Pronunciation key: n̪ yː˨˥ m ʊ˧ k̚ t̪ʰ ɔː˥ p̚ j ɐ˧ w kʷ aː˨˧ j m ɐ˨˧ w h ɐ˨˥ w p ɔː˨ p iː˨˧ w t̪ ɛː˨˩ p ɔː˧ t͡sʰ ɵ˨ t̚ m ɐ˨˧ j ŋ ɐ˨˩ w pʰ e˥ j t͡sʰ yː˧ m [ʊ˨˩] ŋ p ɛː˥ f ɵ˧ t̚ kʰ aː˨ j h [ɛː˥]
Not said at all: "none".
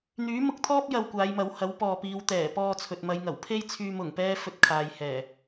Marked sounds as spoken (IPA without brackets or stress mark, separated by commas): ʊ˨˩, ɛː˨˩